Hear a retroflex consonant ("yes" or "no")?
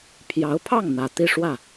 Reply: yes